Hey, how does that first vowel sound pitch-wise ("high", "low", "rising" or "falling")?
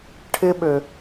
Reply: high